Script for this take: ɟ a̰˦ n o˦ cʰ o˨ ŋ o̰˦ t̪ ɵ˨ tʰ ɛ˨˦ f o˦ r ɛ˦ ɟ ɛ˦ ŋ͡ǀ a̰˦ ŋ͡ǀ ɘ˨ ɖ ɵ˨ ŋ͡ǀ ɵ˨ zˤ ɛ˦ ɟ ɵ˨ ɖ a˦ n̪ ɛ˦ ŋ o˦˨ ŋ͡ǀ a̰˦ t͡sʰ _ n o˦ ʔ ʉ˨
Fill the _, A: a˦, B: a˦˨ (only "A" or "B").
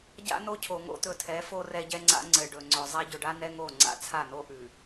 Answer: B